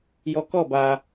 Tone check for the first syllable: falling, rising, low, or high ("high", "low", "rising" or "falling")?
low